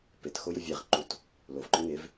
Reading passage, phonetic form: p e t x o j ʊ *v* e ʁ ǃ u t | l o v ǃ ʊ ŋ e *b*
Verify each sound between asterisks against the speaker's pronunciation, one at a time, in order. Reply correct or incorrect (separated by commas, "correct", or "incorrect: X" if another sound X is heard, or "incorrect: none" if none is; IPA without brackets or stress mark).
incorrect: vʲ, incorrect: v